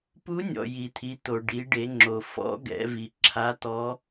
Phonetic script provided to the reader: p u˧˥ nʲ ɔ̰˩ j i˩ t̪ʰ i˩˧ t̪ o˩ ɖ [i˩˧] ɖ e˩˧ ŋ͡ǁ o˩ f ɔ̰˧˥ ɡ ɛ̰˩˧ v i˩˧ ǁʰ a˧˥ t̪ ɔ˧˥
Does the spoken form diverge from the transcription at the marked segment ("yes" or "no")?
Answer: no